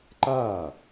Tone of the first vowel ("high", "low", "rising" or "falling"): falling